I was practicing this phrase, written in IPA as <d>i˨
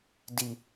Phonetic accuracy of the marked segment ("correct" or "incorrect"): correct